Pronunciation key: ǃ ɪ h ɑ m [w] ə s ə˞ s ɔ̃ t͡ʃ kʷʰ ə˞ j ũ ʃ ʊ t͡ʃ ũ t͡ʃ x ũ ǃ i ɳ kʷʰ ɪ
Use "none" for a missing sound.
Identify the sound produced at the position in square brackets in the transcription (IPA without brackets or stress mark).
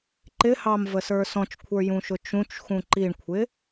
v